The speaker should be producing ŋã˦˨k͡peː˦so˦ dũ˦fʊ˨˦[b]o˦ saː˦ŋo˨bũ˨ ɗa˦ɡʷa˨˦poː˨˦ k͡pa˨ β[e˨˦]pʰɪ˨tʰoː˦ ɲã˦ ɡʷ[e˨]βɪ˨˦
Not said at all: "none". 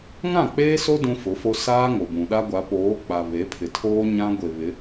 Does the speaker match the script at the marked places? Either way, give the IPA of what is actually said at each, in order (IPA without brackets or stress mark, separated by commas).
f, e˨˦, e˨